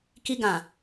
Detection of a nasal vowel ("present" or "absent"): present